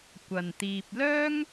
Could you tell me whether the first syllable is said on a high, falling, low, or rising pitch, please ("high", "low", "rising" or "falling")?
low